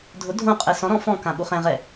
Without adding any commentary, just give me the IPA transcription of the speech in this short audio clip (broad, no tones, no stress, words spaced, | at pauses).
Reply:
dʱʊ dʱõqʼɛ sɔ̃ɾɔ̃ fɔ̃kãɓu χɛ̃ʁɛ